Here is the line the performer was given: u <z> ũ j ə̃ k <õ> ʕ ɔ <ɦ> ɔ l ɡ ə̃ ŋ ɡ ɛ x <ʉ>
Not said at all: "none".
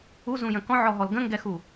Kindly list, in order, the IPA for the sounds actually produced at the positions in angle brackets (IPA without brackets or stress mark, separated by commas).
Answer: z, ɔ̃, ɦ, u